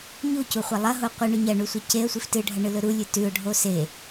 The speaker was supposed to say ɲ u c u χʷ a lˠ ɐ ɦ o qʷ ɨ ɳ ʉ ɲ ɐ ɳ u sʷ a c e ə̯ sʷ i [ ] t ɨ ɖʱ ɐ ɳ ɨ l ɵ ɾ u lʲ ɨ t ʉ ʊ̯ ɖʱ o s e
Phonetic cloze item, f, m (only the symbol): f